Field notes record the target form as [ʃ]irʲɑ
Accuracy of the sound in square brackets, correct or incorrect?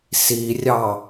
incorrect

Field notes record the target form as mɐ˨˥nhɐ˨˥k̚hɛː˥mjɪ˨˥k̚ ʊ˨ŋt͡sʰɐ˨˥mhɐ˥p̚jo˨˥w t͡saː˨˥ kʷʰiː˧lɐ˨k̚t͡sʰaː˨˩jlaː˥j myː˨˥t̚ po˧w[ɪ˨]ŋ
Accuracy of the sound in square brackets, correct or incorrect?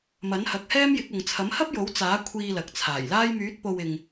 correct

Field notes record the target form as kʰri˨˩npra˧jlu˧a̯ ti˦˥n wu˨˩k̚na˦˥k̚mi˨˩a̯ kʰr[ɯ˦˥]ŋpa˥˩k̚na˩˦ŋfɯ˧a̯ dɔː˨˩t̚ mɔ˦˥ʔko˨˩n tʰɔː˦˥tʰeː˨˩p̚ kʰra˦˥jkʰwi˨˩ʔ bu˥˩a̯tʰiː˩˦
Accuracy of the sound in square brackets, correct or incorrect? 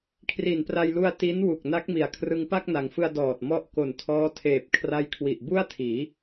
incorrect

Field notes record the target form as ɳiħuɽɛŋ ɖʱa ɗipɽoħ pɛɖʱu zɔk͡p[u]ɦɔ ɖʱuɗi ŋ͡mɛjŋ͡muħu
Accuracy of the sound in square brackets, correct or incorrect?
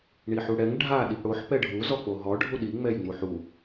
incorrect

